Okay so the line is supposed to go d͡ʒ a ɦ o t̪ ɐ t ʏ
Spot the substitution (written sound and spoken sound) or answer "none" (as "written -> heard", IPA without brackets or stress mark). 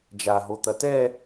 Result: ʏ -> ɛ